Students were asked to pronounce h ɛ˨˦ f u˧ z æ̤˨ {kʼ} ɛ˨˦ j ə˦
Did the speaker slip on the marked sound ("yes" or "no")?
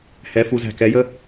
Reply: yes